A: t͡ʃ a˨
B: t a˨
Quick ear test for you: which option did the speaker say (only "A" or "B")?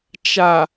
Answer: A